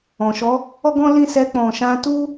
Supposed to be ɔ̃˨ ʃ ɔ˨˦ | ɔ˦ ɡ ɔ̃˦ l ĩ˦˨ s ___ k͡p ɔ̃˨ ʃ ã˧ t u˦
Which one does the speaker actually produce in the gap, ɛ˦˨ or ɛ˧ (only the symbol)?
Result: ɛ˧